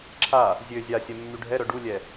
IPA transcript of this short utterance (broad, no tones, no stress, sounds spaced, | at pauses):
ǁʰ a | zʲ ø zʲ a sʲ œ mː y ɖʱ ɛ ɾ œ ɖ u lʲ ɛ